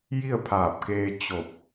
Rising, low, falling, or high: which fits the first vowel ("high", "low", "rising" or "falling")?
falling